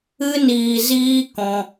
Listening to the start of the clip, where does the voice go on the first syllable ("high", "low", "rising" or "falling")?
high